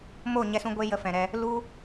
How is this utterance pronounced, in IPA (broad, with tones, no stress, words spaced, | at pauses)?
mo˦˨ɲɛ˧sũ˧ ɡʷe˦jə˧ fɛ̃˨ɾɛ˧ | lu˦